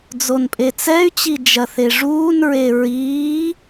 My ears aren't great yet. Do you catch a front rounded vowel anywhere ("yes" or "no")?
yes